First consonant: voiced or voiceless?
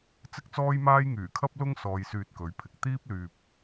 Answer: voiceless